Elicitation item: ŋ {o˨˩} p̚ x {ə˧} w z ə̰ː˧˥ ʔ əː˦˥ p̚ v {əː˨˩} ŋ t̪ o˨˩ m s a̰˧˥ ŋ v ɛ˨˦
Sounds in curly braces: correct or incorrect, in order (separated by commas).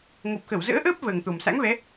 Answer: correct, incorrect, correct